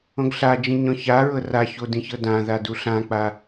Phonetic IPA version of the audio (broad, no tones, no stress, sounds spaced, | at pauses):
õ ɡ ɬ a d͡ʒ ĩ ɲ ɔ̃ ç a ɹ ɤ r a ç o d ĩ ç ɤ d ã ð a d u ɬ ã k͡p a